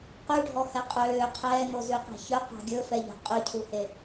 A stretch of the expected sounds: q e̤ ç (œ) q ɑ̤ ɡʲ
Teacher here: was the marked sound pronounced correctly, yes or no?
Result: yes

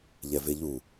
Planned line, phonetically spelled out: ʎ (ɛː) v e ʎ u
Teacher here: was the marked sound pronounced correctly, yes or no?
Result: no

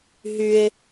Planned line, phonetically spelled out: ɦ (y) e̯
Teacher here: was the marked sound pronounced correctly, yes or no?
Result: yes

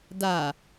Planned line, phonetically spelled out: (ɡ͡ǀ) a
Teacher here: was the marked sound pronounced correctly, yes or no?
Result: no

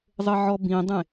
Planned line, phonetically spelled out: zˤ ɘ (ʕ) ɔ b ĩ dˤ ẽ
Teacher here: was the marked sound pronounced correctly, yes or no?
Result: yes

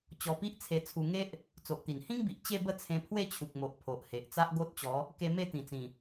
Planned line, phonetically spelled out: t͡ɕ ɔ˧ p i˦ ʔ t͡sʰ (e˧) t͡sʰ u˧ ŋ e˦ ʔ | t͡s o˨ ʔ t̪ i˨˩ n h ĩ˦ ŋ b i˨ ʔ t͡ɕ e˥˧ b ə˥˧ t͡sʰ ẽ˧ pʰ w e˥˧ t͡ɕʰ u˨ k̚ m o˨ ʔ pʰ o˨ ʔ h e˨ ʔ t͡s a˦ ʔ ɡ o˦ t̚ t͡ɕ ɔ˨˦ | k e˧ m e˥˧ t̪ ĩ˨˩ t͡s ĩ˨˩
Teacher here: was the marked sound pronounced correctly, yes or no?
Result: yes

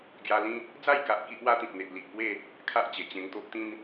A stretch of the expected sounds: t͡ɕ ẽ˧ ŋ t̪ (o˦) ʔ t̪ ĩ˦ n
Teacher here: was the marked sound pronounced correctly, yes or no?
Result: yes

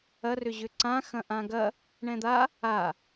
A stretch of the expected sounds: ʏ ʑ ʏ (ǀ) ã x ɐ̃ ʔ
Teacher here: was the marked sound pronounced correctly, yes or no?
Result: yes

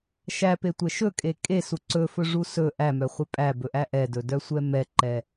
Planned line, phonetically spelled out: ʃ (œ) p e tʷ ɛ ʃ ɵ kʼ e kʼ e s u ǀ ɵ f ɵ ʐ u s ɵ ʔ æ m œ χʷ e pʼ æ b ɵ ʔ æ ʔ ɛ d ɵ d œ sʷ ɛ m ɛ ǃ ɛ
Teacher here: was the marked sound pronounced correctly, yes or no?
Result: no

